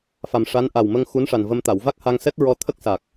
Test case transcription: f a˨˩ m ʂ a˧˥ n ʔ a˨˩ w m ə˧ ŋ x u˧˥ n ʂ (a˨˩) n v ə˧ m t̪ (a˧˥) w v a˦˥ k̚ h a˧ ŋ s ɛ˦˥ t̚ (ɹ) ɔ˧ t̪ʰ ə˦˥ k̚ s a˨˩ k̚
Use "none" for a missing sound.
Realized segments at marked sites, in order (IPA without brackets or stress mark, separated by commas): a˨˩, a˨˩˨, ɹ